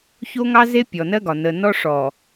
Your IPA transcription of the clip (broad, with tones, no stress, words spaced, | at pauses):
ço˦ŋɑ˦ze˦ pʲɔ˨nɜ˦ɡɒ˨ nə˨nɔ˦ ʂɔ˨